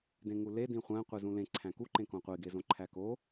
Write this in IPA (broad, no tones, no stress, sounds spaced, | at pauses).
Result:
d ẽ ŋ u l e d ĩ χʷ æ̃ qʷ i z ũ l ẽ ǀʰ æ̃ k u ǃ ẽ k õ qʷ i ɡ e z õ ǃʰ æ k o